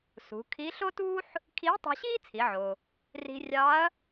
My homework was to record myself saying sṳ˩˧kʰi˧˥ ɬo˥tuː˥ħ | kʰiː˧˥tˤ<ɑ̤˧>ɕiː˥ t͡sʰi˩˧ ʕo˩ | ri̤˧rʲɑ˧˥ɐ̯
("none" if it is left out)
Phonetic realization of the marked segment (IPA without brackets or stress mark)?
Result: ɑ̤˧